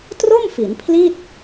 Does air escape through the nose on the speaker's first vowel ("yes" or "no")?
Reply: no